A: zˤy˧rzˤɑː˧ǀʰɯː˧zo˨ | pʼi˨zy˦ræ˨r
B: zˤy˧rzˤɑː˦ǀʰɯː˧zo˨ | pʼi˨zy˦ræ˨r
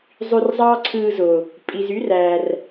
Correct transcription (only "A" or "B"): B